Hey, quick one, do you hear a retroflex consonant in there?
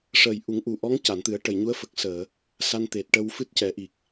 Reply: yes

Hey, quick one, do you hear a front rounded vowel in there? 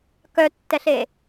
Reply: yes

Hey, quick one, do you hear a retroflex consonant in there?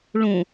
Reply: yes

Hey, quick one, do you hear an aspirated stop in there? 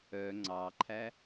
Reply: yes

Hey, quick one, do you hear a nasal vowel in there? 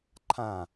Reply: yes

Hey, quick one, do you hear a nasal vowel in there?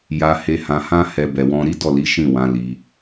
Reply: yes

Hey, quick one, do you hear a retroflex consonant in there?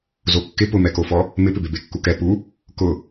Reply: no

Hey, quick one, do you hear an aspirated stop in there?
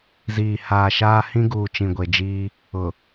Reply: no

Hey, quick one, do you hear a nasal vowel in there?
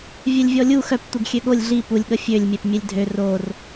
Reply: no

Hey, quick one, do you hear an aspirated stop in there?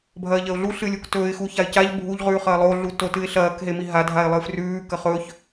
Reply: no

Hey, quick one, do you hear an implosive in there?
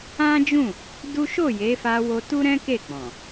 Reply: no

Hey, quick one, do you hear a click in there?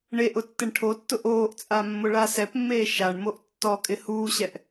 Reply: no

